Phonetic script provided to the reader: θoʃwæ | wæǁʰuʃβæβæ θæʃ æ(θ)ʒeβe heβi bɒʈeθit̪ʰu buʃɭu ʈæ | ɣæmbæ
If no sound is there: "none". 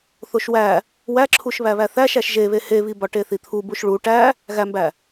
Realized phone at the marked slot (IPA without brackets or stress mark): ʃ